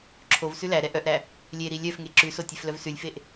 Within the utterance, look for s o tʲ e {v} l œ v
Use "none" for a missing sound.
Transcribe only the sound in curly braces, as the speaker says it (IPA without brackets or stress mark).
f